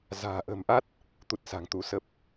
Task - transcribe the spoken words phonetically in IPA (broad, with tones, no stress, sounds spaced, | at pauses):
z a̤ː˨˩ ʔ ə̤˨˩ m ʔ a˦˥ t̚ | t̪ u˦˥ t̚ s a̤˨˩ ŋ t̪ u˨˦ s ə˦˥ p̚